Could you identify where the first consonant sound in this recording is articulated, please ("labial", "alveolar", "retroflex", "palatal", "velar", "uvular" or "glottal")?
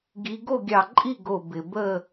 velar